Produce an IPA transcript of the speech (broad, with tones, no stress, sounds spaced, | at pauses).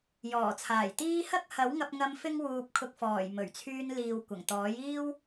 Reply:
j ɔː˨˩ t͡sʰ aː˨˩ j t̪ iː˥ h ɐ˥ k̚ h ɐ˨˥ w ŋ ɐ˧ p̚ ŋ ɐ˧ m f ɪ˥ ŋ w uː˧ p̚ kʰ ʊ˨ k̚ f ɔː˨˩ j m ɵ˨˩ ɥ t͡sʰ yː˧ n l iː˨ w kʷ ɐ˨˩ ŋ t̪ ɔː˨˥ j iː˥ w